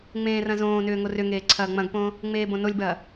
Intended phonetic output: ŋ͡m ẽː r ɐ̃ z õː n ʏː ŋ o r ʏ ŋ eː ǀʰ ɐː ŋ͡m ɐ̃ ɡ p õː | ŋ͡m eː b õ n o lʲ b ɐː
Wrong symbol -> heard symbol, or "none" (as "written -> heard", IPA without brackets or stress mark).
none